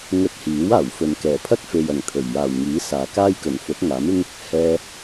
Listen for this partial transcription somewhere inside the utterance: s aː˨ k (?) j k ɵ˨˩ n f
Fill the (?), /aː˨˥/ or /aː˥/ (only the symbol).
aː˥